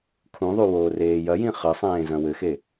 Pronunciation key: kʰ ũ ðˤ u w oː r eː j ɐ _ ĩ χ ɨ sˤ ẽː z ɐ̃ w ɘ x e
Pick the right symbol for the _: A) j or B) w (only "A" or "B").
A